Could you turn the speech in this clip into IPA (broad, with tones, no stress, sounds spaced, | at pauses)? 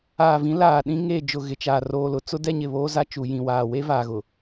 aː˨ v ĩ˨˦ l aː˨ ɗ ĩ˦ ŋ e˦˨ d͡ʒ ʊ˨ ɣ ɪ˨ t͡ʃ aː˨ r oː˨ l ʊ˨ t͡s ʊ˦ d ɛ˦ ɲ ɪ˨ β oː˦ z a˦ t͡ʃ u˨ j ĩ˨ w aː˨ w e˦ v aː˨ ɣ ʊ˨